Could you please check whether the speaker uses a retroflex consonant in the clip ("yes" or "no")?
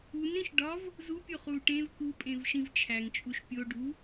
yes